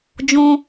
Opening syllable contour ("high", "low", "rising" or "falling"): high